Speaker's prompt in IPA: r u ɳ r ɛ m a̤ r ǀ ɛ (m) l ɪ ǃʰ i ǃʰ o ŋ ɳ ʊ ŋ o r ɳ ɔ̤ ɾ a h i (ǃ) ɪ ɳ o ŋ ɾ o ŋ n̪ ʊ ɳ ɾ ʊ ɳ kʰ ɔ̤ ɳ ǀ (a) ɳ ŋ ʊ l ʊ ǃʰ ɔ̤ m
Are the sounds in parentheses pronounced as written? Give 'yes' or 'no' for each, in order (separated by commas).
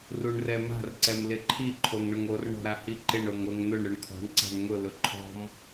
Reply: yes, yes, no